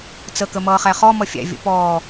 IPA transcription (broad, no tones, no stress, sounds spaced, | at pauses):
t͡s ə k ə m ʌː χ æ χ ɔ m ʌ fʲ æ̰ vʲ ə̰ p ɔː